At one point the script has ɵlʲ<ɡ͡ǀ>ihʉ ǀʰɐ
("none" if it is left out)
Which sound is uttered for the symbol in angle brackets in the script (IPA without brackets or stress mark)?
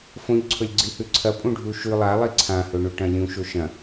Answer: ɡ͡ǀ